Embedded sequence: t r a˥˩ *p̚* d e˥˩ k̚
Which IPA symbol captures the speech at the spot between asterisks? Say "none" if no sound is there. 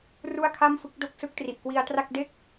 k̚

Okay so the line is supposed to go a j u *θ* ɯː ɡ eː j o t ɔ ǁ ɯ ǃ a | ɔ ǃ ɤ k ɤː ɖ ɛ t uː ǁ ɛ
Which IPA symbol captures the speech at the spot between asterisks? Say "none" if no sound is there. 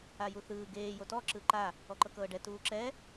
θ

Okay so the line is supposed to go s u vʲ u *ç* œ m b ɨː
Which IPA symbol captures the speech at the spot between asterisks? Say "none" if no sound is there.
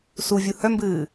h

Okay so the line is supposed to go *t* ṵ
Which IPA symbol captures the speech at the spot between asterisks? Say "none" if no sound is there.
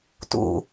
t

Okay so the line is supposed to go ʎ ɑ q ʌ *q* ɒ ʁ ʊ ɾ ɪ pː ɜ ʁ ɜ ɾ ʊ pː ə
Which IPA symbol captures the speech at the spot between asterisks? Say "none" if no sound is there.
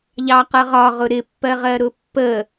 ʁ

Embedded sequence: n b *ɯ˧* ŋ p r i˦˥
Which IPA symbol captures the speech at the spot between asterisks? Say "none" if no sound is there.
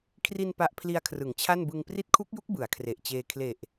ɯ˧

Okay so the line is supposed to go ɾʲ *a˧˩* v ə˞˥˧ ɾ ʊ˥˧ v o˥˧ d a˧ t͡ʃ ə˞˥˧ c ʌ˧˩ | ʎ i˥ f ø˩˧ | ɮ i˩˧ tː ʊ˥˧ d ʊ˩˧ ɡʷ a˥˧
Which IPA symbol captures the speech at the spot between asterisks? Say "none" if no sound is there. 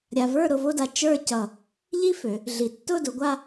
a˧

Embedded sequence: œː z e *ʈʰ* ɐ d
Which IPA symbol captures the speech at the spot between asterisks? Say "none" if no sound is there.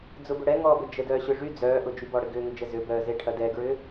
ʈʰ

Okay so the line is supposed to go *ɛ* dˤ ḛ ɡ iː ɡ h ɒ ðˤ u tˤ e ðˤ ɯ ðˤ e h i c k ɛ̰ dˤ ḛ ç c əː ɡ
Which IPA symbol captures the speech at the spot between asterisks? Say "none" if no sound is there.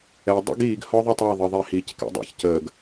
ɛ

